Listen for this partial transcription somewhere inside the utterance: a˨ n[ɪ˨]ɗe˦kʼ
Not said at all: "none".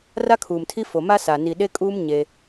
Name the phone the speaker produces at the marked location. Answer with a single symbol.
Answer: i˨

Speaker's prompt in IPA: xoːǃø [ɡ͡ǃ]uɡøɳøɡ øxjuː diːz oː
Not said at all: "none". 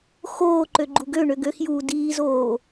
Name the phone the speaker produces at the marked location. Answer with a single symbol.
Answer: ɡ͡ǃ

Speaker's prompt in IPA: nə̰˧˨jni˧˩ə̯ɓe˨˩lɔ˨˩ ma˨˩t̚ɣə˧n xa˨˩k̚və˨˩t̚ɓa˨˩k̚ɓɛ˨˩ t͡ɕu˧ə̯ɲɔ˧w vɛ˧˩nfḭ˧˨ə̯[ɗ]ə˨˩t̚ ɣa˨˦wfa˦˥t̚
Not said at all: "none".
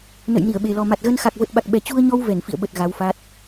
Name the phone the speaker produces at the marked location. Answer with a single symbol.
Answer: ɓ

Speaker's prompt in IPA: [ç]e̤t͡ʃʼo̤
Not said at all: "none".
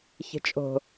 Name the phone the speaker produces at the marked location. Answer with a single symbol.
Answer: ç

